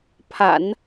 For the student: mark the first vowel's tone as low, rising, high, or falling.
low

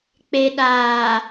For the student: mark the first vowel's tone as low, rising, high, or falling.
low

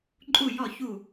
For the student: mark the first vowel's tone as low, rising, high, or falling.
falling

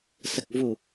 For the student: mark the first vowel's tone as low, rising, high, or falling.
low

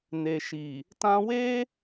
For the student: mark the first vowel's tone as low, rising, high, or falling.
low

